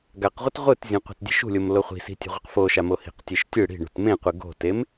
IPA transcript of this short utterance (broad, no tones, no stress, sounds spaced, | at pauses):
ɡ a q ʁʷ ɤ t ʁʷ ɯ t zʲ õ qʷ e̤ t dʲ e̤ ʃ ṳ lʲ o m l o χʷ i̤ s i̤ tʲ e̤ ʁʷ i q f o ʃ a m o h i̤ q tʲ e ʃ tʲ ɯ ɽ i̤ ɳ ṳ t m ẽ qʷ ɯ ɡ o̤ t e m